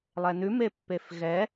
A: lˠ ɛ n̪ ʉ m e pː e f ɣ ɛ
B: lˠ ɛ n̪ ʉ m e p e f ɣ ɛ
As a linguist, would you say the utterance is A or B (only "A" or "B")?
A